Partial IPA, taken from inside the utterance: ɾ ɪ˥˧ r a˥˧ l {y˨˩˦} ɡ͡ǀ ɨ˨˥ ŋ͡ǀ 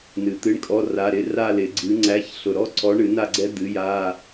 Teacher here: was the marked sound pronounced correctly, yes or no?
no